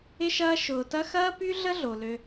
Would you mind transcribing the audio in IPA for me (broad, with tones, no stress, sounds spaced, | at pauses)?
ɪ˦ ʃ ɐː˦ ʃ ʊː˨ t ɐ˦ x ɐː˦ p y˦ ɮ ə˦ ɮ o˨ l ø˦